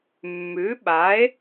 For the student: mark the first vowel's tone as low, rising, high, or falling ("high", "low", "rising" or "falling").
rising